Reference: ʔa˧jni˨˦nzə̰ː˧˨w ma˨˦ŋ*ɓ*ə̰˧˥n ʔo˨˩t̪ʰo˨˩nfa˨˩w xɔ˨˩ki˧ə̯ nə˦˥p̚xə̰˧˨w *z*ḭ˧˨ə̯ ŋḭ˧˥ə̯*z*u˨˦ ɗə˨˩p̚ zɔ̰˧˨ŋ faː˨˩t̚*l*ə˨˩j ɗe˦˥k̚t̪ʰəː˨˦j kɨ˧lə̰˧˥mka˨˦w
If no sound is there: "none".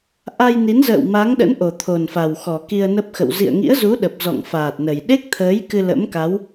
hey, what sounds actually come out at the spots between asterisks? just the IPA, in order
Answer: ɗ, z, z, n

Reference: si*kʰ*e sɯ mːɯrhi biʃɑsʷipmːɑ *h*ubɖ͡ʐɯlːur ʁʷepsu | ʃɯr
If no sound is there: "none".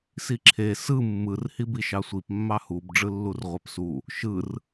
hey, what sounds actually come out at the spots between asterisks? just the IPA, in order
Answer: ǁʰ, h

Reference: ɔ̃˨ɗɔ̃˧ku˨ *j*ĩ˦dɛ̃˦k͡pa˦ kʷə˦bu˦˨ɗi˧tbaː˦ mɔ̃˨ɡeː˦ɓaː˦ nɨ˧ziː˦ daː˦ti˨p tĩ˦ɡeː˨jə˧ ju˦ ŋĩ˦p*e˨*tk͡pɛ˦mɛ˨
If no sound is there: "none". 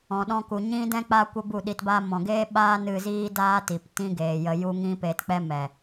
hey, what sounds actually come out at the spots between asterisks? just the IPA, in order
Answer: ɲ, e˧

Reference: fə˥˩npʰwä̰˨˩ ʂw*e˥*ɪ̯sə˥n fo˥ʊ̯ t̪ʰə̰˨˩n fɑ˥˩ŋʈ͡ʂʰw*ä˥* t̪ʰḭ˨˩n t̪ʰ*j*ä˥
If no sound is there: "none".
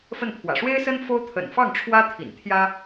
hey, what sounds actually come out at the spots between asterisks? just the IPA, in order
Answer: e˥, ä˥, j

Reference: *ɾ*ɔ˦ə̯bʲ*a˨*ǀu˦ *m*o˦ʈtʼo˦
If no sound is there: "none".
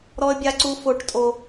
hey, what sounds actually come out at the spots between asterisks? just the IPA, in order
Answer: ɾ, a˦, f

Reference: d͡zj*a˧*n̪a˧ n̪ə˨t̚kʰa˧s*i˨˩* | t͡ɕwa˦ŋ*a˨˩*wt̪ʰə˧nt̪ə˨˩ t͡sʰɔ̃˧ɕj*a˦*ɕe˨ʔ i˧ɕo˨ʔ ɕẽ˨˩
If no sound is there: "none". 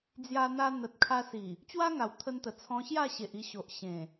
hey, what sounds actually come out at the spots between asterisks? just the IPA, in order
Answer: a˧, i˨˩, a˨˩, a˥˧

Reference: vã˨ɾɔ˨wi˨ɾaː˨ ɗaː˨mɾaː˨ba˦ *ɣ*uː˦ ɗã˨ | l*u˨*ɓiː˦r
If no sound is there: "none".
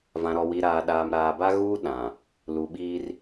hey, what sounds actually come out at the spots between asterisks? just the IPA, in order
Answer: ɣ, u˨

